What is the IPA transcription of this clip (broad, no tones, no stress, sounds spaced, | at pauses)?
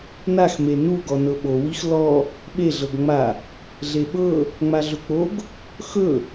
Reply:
n a x m e n u ɡ ɔ n ɤ ɓ o w i x l ɔ | ɓ e ɮ ɤ ɡ ŋ͡m a | ɮ e ɓ ɤ | ŋ͡m a ɮ ɵ k͡p o ɡ | x ɵ